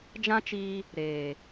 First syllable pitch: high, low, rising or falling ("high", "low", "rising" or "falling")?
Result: high